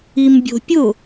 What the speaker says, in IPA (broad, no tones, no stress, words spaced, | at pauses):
imbʲo̤pʲʊ